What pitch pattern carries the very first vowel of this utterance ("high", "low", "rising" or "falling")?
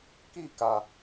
falling